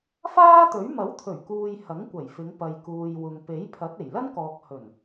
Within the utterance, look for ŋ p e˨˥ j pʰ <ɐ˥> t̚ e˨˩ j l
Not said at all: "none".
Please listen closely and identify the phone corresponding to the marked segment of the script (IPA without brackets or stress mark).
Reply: ɐ˨˥